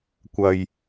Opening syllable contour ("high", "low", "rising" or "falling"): low